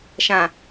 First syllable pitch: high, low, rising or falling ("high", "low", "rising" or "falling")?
low